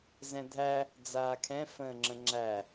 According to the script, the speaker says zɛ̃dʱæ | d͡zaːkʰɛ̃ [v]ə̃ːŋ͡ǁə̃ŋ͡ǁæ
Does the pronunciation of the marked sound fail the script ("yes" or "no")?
yes